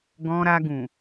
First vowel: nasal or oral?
nasal